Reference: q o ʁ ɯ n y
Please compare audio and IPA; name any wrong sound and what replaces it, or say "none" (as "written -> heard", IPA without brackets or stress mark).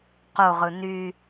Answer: none